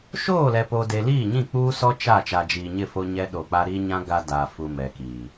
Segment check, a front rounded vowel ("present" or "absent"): absent